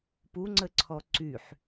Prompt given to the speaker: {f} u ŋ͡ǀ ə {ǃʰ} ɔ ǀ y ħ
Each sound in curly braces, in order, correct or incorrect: incorrect: p, incorrect: ǀʰ

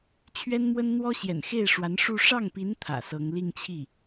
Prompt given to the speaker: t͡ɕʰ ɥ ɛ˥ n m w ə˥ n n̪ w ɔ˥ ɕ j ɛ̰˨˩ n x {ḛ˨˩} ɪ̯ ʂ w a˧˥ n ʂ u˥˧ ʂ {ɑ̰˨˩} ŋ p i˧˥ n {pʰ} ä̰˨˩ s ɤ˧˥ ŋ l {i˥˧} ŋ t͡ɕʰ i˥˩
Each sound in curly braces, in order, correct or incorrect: incorrect: e˥˩, incorrect: ɑ˥˩, incorrect: t̪ʰ, correct

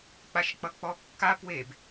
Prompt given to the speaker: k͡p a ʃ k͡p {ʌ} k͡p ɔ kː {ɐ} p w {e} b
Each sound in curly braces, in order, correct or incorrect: correct, incorrect: a, correct

